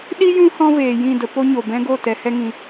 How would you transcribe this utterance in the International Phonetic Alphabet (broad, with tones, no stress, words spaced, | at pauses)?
ɗi˦ jũ˦ hɔ̃˦veː˨jĩ˦˨də˧ po˦ɲo˨bɛ̃˦ ɡo˦˨tɛ˨hɛ˧ŋĩ˨